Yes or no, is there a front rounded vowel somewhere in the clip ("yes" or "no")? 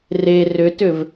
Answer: yes